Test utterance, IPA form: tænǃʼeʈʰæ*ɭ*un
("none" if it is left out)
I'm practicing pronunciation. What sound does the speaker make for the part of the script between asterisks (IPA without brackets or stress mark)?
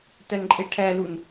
l